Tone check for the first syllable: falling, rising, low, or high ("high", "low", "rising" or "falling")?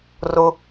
low